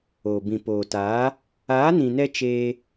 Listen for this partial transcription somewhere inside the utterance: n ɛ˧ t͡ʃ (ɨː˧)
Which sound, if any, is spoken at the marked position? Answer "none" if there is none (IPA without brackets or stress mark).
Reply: eː˧